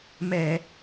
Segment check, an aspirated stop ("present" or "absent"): absent